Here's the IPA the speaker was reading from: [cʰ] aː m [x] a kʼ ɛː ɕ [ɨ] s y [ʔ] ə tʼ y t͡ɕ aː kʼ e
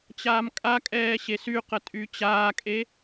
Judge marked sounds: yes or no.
no, no, no, no

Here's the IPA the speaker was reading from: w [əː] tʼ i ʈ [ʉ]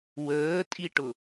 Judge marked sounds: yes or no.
yes, no

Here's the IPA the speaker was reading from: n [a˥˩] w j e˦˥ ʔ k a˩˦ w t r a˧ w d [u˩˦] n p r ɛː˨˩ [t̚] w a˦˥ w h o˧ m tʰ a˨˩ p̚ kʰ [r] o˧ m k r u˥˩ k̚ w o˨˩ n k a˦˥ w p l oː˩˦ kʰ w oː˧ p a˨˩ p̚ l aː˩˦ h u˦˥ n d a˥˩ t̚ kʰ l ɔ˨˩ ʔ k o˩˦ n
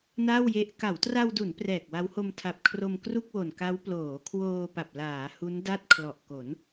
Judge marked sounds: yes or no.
yes, yes, no, yes

